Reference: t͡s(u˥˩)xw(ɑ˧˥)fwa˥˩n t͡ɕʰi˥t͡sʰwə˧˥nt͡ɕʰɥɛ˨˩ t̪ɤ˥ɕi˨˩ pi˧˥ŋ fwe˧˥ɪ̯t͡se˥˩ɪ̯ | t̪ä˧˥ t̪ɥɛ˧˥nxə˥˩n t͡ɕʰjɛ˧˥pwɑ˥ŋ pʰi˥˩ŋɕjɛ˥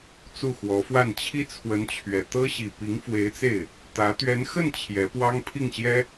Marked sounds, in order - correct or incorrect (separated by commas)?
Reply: correct, incorrect